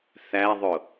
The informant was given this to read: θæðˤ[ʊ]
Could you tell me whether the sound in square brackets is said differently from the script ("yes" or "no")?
no